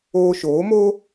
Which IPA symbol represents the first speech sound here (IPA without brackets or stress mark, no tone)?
oː